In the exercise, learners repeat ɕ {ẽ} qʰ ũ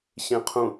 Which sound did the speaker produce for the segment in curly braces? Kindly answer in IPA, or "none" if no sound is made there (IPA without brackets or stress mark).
ẽ